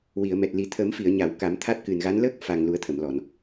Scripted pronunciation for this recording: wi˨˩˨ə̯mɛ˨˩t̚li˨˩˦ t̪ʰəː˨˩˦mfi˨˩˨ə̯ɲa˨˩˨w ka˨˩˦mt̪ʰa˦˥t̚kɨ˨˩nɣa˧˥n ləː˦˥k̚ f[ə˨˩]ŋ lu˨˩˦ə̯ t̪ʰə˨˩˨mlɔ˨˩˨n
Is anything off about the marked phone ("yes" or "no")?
yes